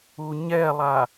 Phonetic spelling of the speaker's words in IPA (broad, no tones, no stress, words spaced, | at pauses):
uɲɛlˠa